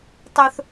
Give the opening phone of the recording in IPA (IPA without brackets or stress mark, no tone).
tˤ